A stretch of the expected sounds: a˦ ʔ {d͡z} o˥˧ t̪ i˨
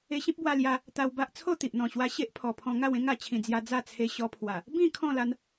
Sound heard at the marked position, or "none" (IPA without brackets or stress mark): t͡sʰ